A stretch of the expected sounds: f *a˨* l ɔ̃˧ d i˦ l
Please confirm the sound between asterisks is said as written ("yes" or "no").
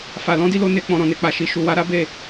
yes